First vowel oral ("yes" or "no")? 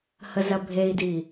yes